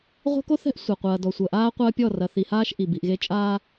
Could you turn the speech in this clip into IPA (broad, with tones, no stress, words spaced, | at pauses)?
ʁʷɛ̤˦ko˦θɛ̤˦ʔ sʷa˨qʷɐː˨ dɔ˨sʷɐ˨ʔaː˦ qʷɐː˦pʲɔ˦˨rɐ˨ θi˨haː˦ʃ ʔi˨bi˨ʔɣe˦ t͡ʃʼaː˦